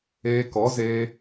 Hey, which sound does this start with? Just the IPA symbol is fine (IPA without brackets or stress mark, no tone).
eː